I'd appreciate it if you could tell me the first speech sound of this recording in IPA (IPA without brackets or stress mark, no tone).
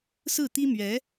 s